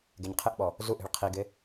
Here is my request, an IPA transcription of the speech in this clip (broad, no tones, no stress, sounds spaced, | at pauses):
ɡ e ɲ qʰ ɪ ʔ ɓ ɔ | z u ʔ i̤ ɭ qʰ i ɡ ɪ